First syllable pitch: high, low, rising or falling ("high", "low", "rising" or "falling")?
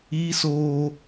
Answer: high